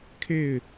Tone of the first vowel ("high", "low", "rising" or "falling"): falling